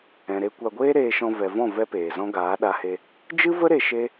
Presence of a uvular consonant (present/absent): absent